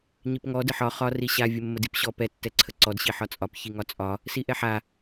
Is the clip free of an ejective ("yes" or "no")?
no